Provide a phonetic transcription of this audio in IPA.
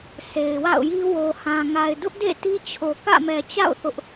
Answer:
sʰ e˨ ɪ̯ w a̰˦˨ ʊ̯ j i˦ w o˨ h ã˨ ŋ a˨ ɪ̯ d ʊ˦ ʔ d ḛ˦˨ t i˦ t͡ɕʰ o˨ k ä̰˦˨ m ɛ˨ t͡ɕ a̰˦˨ ʊ̯ θ ʊ˦ ʔ

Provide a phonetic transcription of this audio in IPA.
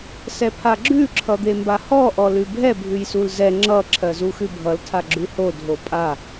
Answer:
s ɛ pʰ a ɡ͡ǁ ʉ ǁʰ ʌ d̪ e m b a h ɔ ʔ ɔ l ʉ bʱ ɛ bʱ ʉ j s u l z ɛ ŋ͡ǁ ʌ ǁʰ ɜ z u x ʉ bʱ ʌ l tʰ a ɡ͡ǁ ʉ h o dʱ o pʼ a

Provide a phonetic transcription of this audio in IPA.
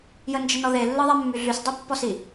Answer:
j ə n d͡ʒ ə n ɔ ð e lː ɯ ðˤ ɛ mː y ɮ y s dˤ i pː ɔ s i

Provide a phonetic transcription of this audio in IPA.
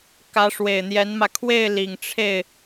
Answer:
k ä˧˥ ʂ w e˨˩ ɪ̯ n̪ j ɛ˧˥ n m ä˧ kʰ w e˥˩ ɪ̯ l i˨˩ ŋ ʈ͡ʂʰ e˥˩ ɪ̯

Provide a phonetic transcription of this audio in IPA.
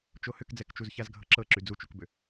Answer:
t͡ʃ o h ʏ k d͡z ɛ k t͡ʃ u z ç a z ɡʱ ɤ ǁ ɤ ǁ y d͡z u t͡ʃ u k b ʏ

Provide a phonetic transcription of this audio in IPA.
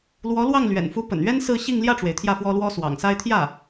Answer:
l w ɔ˧˥ l w ɑ˥˩ ŋ l ɥ ɛ̰˨˩ n f u˧˥ p ə̰˨˩ n ɥ ɛ˥ n s ɹ̩˥˧ ɕ i˥˧ ŋ l j ä˥˩ ʈ͡ʂ w e˩ ɪ̯ t̪ʰ j ä˥˩ f w ɔ˥ l w ɔ˥ s w ɑ̰˨˩ ŋ s a˥ ɪ̯ t̪ʰ j ä˥˩

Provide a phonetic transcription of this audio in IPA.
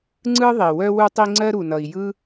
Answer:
ŋ͡ǀ ɯ˥ ðˤ i˩ w œ˥ w u˥ tˤ i˥ ŋ͡ǀ ɜ˥ ɾ u˩ n ʌ˩ i̯ j ɯ˥

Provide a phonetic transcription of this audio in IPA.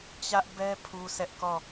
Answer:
t͡ɕ ä˦ ʔ b ɛ˦ pʰ u˦ s ɛ˦ ʔ k ɔ˦˨

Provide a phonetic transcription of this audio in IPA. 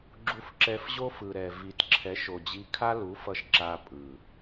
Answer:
ɡ͡ǁ u˧ f ǁ ɛ˧ f ʑ o˦ f ɯ˨ ɾ ɛ˨ v i˨ t ǁʰ ɛ˨˦ ʃ o˨ d͡ʑ i˧ kʰ a˦ l u˨˦ f ʌ˧ ʃ ǁ a˧ pʼ ɯ˨

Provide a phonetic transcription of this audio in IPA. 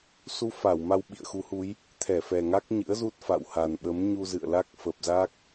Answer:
s u˧ f a˧˩ w m a˧ w ɓ ḭ˧˨ ə̯ x u˨˦ h u˨˦ j | t̪ʰ ɛ˧˩ f ɛ˨˩ ŋ a˦˥ k̚ ɲ ɨ̰˧˥ ə̯ z u˦˥ t̚ f a̰˧˨ w h a˨˩ n ɓ ə˨˦ m ɲ u˧ z ɨ̰˧˨ ə̯ l a˦˥ k̚ f ə˨˩ p̚ z a˦˥ k̚

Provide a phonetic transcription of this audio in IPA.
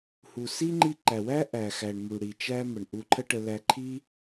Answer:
h u˨ s i˦ ŋ͡ǃ i˧ ǃ æ˨ w æ˦ ʔ æ˨ x æ˨ ɳ m u˨ ɽ i˨ t͡ʃ æ˧ m ə˨ ɳ ʔ u˧ ǃʰ ə˦ ʈ ə˧ l æ˧ ǃʰ i˦

